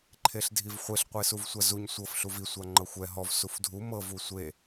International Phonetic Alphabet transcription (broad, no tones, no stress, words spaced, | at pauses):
ǃʰeɬdʱivχʷeɬ qʷesuvsʷazuɲ sʷɤf ɬuvi sʷaŋ͡ǃɤxʷɛ ɦɔv sufdʱu mɤv usʷe